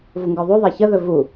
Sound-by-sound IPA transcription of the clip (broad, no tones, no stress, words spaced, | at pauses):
vuŋɡœðˤuðˤæ çəðɵ vu